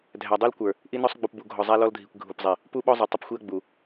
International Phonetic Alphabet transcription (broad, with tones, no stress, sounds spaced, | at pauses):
dʱ æ˨ dˤ u˦ l kʷ ə˞˨ | ʔ i˦ n ɔ˦ sˤ ɡ͡b u˨ p b u˨ ɡʱ ɔ˨ zˤ æ˦ l ɔ˦ l dʱ i˨ kʷ ɡʱ u˨ p zˤ i˨ | p u˦ ɓ ɔ˦ zˤ ə˞˨ tˤ ə˦ p xʷ i˦ ɐ̯ ɡ͡b u˨